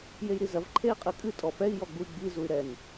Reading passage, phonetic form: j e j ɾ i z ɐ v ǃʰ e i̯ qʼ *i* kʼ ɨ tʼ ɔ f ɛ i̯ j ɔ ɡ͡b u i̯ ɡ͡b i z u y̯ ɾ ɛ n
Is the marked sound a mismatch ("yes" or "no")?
yes